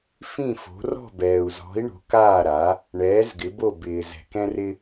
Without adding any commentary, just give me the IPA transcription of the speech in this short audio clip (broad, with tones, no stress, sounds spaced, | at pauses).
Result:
f ĩ˥˨ f o̤˨˥ r ɔ̤˥˨ b ɛː˨ u̯ z ɔ̤˨˥ i̯ ɳ o̤˨˥ k aː˥˨ ɾ a˨˥ | ɳ ɛː˨˥ z ɡ ɪ˨˥ b o˥˨ b ɪː˨ z ɛ̤˨ k ɛ̃˦ r ɪ˦